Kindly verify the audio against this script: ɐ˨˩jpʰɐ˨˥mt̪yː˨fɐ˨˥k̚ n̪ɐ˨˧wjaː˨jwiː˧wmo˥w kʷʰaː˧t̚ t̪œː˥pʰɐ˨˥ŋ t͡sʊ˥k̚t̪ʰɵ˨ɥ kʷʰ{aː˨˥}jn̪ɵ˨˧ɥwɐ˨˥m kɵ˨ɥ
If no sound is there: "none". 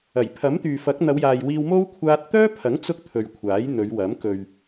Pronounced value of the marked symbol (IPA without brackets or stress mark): aː˨˥